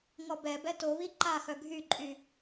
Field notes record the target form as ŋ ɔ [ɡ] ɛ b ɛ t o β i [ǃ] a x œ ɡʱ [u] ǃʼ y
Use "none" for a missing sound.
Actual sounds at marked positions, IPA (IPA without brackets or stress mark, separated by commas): b, ǃ, y